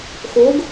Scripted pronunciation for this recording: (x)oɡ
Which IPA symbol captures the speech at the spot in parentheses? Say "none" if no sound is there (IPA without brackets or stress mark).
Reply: x